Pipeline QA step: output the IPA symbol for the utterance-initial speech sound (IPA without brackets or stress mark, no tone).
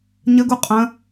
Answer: ɲ